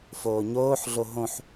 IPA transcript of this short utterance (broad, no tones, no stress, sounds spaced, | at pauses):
f oː ɲ oː ħ ɮ o ɦ õ ħ